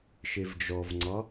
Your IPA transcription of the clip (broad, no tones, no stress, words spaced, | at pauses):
ʃevd͡ʒɔvŋ͡ǀɒ